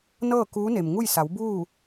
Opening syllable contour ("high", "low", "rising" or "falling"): falling